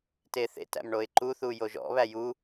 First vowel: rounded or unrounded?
unrounded